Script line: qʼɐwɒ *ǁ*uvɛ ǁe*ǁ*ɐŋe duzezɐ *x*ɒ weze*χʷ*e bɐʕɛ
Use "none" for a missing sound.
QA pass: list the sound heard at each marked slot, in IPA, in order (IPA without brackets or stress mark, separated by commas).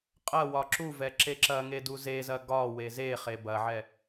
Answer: ǁ, ǁ, ɡ, χ